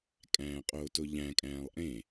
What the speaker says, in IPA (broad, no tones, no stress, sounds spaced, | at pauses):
kʼ æ̃ː qʼ oː t o ʎ æ̃ kʼ æ̃ː lˠ ʔ ẽ